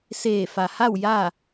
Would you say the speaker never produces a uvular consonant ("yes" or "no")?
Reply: yes